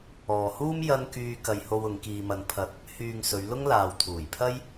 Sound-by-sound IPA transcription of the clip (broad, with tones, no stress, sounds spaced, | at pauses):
ɔː˨ h uː˥ m j ɐ˥ n k yː˧ k ɐ˧ j h o˧ w ʊ˨˧ ŋ k iː˧ m ɐ˧ n pʰ ɐ˧ t̚ | h yː˨ ŋ s ɵ˨˧ ɥ l ʊ˥ ŋ l aː˨ w t̪ʰ uː˨˩ j pʰ ɐ˥ j